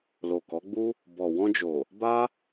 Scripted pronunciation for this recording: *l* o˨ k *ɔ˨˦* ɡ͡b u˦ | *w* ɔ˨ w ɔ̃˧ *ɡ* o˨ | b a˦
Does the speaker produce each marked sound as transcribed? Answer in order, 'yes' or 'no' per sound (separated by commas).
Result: yes, yes, no, no